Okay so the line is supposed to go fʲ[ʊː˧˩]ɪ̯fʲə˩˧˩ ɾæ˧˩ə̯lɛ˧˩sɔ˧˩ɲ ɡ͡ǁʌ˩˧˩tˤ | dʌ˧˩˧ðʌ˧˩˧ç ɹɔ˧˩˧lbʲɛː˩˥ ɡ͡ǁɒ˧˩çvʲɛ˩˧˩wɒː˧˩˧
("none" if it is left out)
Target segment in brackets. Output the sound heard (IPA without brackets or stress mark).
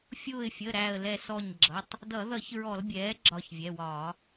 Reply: ʊː˧˩